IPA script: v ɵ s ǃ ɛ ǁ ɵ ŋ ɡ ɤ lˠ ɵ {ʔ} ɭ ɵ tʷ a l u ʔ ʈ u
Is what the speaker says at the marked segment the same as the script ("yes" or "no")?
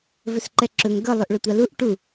yes